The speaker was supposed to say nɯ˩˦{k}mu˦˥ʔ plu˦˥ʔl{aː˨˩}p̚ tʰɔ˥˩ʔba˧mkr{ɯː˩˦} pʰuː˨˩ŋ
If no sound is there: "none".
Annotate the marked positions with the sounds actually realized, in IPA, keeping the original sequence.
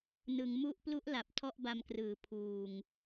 ŋ, a˨˩, ɯː˩˦

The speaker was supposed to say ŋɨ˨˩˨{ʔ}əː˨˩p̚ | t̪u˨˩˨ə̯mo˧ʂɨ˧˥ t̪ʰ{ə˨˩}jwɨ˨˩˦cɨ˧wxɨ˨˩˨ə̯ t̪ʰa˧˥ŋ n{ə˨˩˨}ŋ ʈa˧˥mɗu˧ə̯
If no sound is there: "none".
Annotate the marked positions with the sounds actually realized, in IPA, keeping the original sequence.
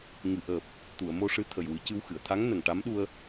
ʔ, ə˨˩, ə˨˩

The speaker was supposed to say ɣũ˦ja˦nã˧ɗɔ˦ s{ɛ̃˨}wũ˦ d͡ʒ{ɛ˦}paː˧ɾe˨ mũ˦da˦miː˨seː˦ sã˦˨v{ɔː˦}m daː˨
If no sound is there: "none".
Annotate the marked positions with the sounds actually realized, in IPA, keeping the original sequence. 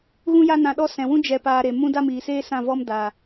ɛ̃˨, ɛ˧, ɔ˦

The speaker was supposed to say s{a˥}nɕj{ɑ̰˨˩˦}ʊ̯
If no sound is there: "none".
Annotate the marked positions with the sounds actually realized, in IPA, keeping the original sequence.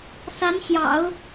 a˧˥, ɑ̰˨˩˦

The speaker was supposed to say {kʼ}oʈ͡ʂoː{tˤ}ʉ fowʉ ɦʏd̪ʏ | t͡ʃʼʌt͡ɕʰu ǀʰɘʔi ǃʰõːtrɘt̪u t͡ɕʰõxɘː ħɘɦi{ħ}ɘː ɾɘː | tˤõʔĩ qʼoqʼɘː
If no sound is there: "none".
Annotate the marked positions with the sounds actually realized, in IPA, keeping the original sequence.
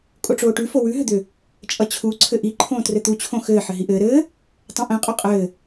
kʼ, ʈ, ʔ

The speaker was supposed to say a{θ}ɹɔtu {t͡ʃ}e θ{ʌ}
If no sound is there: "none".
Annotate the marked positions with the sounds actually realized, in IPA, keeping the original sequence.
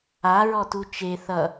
none, t͡ʃ, ʌ

